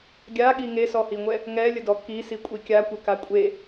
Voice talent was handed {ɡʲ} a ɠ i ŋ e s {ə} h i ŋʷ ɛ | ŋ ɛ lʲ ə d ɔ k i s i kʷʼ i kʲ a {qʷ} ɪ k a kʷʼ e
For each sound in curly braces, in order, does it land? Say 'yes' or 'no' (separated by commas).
yes, no, no